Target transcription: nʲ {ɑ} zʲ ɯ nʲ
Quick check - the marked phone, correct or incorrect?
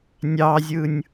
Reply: correct